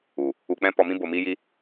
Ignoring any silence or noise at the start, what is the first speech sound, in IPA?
u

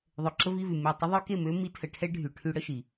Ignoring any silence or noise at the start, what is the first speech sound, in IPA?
ðˤ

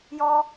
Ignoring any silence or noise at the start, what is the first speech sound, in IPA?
j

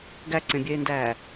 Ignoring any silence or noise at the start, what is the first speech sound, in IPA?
ɡ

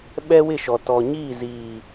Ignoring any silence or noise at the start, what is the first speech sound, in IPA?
ɓ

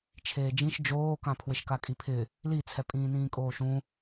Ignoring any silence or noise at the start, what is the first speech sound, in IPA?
t͡ʃʰ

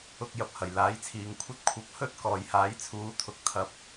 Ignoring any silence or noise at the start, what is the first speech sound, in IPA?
ʊ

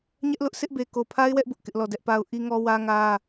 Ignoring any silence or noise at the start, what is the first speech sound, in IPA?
ɲ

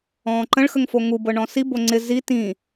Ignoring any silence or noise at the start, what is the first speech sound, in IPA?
ɔ̃ː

